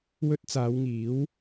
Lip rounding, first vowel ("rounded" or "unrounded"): rounded